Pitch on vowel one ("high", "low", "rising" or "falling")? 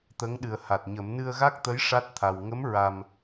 rising